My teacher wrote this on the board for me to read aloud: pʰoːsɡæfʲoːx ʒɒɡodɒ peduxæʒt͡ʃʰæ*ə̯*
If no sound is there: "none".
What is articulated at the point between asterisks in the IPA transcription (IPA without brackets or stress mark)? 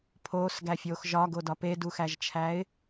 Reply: ɪ̯